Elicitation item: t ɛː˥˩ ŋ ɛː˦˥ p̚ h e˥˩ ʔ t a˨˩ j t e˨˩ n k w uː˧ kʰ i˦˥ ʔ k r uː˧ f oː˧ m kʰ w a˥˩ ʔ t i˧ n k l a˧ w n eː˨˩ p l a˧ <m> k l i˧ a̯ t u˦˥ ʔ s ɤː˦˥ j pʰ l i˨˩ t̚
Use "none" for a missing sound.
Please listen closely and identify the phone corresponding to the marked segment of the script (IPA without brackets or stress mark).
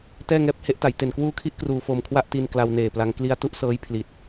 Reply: ŋ